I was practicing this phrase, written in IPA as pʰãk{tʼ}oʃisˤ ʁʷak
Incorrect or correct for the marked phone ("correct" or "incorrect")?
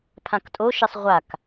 correct